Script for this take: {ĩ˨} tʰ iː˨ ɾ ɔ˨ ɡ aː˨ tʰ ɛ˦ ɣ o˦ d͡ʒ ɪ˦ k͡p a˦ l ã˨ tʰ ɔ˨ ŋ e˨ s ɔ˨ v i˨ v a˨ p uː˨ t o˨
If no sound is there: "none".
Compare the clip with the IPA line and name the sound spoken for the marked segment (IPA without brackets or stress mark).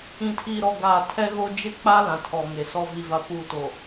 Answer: ĩ˨